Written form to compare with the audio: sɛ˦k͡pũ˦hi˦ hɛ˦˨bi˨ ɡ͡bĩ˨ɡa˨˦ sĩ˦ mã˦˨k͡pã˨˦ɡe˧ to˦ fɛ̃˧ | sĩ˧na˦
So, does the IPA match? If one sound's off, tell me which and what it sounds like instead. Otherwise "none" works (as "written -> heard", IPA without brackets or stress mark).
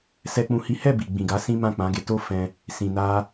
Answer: none